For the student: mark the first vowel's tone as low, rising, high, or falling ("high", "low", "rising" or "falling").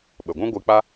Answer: low